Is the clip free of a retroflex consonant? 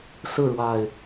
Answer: no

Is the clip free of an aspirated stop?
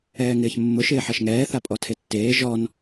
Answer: no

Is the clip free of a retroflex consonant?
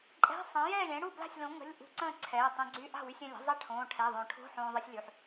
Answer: no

